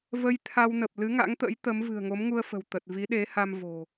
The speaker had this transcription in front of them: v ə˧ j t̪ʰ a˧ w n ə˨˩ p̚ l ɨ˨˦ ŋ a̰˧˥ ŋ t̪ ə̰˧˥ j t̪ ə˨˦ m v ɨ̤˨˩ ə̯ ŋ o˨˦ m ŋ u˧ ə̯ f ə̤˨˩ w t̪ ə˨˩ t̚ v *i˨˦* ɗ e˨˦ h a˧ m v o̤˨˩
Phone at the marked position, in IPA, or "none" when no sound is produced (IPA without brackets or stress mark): i˨˦